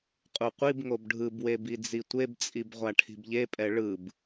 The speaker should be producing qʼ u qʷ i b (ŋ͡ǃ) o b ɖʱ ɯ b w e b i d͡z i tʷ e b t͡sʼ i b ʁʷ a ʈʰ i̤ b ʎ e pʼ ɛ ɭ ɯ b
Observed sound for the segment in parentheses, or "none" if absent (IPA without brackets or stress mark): ŋ